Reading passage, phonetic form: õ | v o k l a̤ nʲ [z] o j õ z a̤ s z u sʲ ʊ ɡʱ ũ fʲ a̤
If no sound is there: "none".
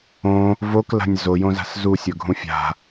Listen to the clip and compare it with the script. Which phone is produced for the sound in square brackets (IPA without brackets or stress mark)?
z